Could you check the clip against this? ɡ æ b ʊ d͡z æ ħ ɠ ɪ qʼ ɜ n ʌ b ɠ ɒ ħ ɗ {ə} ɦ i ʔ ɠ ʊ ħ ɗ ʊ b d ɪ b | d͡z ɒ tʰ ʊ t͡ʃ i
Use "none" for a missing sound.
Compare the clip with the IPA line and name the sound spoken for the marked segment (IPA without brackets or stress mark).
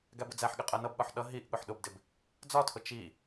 ʌ